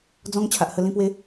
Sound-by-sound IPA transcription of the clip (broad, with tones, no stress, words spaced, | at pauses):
d͡zɔ̃˦ŋ t͡ɕʰa˨ʔhə˧ lĩ˧pwe˧